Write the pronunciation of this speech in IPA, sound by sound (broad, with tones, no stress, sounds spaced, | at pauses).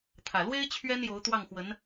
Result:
t̪ʰ ä˨˩ l w e˥ ɪ̯ t͡ɕʰ ɥ ɛ˥ n j o˧˥ ʊ̯ t̪ w ɑ˥˩ ŋ x w ə˧˥ n